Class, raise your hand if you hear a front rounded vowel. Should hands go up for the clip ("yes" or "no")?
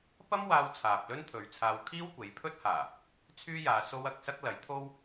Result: yes